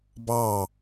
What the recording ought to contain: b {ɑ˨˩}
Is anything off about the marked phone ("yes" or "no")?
yes